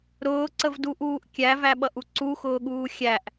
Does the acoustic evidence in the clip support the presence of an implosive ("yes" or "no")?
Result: yes